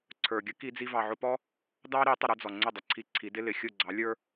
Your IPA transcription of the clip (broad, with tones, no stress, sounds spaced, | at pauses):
ǀʰ ə˞˨ ɡʲ ə˦ k i˧ d͡z i˧ v ɑ˨ ʕ ʊ˧ p ɔ˦ | d ɑ˦ ɾ i˨˦ tˤ ə˧ ɾ ə˦ d͡z ɔ˨ ŋ͡ǀ ʊ˦˨ dˤ ə˨ ǀʰ i˧ ǀʰ i˨˦ d ɪ˦ l ɪ˨ xʲ ʊ˦˨ ɡ͡ǀ ɑ˨˦ lʲ ə˞˦